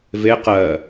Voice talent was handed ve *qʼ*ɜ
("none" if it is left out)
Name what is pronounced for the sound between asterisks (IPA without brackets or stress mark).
q